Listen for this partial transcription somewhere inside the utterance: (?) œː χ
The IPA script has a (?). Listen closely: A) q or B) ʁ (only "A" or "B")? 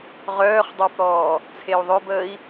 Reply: B